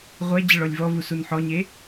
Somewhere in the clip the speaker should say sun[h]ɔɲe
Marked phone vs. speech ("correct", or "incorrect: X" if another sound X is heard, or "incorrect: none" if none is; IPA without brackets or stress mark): incorrect: ħ